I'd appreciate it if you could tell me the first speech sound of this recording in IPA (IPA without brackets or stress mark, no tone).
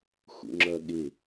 x